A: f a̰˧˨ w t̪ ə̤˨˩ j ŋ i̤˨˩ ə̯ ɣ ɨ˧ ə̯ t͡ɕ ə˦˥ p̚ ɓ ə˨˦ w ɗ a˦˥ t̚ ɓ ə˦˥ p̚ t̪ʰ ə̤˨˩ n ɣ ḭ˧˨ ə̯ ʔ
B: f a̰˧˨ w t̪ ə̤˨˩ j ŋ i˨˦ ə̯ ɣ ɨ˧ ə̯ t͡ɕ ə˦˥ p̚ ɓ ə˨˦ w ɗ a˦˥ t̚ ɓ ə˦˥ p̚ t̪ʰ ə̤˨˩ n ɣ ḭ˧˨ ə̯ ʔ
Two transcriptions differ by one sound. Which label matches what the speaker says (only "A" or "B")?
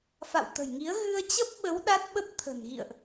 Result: B